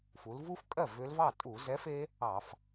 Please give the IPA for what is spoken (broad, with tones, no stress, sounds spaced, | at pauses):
f u˩˧ l v u˦˥ f kʼ ɜ˥˩ v ʏ˦˥ l v ɑ˥˩ tʼ u˧˩˧ z ɛ˨˥ f e˦˥ | ɑ˧˩˧ f